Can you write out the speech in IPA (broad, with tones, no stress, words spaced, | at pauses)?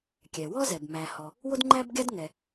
kʲɛ˩wɔ˥zɛ˩b mæ˩hɔ˩ | wo˥dŋ͡ǃæ˥bɡʲa˥dŋɛ˩